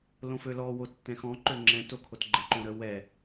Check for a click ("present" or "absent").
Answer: present